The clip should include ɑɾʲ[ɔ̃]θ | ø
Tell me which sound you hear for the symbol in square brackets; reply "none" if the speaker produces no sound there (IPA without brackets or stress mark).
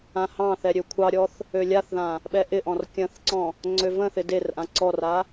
ɔ